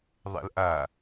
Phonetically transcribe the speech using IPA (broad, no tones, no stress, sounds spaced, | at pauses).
ðˤ ɛ̰ l ʔ a